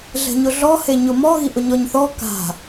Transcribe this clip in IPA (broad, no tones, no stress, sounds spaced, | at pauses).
ɮ ɛ̤ ɲ ʊ ɮ ɔ h e ɲ ʊ m ɔ ɣ i ʔ ʊ ɲ ɔ ɲ θ ɔ k a̤